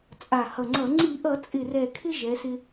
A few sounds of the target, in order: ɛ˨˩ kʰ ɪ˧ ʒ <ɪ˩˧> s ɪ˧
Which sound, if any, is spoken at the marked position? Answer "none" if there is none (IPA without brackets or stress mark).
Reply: ɛ˩˧